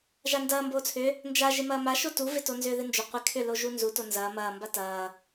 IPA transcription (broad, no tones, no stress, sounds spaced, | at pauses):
ʒ a n d ɐː m b oː t͡sʰ ʏ | n d͡ʒ a ʒ ɪ m ɐː m a ʃ o t u v ɪ t o n z ʏː ð ɪ n d͡ʒ ʏ qʷ ɪ kʰ ʏ l o ʒ u n z u t o n z ɐː m ɐː m b a t ɐː